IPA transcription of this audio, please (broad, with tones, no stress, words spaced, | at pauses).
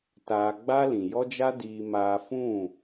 taː˧ ɡ͡ba˦lĩ˨ jɔ˦d͡ʒa˦diː˧ maː˧fũ˦˨